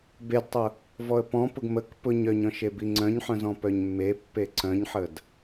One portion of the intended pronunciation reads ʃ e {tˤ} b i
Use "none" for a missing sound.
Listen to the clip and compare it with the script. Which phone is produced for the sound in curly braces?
none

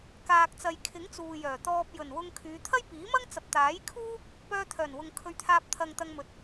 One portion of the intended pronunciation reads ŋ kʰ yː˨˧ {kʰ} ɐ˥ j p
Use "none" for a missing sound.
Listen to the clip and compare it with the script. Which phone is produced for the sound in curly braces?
t̪ʰ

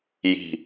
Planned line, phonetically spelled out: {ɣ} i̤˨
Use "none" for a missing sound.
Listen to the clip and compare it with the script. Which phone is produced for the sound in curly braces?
j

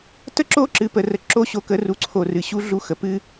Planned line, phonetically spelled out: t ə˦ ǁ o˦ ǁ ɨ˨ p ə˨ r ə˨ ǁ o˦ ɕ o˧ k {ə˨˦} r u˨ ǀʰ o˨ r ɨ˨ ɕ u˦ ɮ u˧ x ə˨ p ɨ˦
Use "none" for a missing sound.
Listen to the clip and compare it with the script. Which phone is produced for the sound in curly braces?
ə˨˦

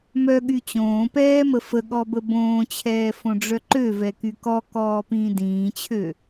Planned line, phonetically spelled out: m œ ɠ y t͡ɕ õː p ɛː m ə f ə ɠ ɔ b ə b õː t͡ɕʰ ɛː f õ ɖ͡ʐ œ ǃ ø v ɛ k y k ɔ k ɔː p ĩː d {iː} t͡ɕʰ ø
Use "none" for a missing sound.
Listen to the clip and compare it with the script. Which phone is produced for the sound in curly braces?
ĩː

